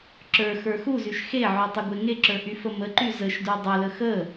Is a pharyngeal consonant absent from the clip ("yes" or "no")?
no